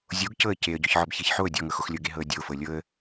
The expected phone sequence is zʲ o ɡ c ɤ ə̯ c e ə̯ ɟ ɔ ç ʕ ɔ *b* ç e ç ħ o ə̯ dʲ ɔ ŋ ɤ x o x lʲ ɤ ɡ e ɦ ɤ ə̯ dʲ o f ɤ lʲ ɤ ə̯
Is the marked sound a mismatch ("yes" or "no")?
no